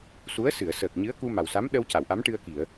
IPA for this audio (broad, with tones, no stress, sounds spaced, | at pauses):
s u˧˥ ə̯ s ɨ˨˩˨ ə̯ s əː˨˩ k̚ ɲ ɨ˧˥ ə̯ k u˧ m a˨˩ w s a˧˥ m ɗ ə˧ w c a˨˩˨ w ʔ a˧˥ m ʈ ɨ˧ ə̯ k i˨˩˨ ə̯